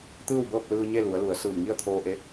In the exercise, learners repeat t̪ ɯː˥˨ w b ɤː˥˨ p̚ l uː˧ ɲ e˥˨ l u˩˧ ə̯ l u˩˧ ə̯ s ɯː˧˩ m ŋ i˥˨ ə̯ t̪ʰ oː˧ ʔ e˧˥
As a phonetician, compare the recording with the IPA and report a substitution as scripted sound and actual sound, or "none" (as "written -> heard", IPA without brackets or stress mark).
uː˧ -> ɯː˧